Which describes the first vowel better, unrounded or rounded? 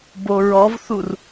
rounded